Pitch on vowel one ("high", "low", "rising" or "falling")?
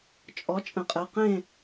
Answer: rising